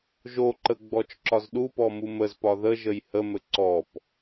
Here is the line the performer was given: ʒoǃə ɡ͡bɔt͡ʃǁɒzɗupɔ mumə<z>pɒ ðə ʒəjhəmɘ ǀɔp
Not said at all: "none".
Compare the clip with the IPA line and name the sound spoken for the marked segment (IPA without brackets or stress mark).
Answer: z